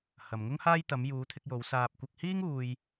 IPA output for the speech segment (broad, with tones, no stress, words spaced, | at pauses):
hɐ˨mŋʊ˥ŋhaː˥j t̪ɐ˨˧mjuː˨˧t̪ʰɪ˧k̚jo˨˧w saː˧p̚ kʷɐ˧k̚hiː˥ŋ uː˧j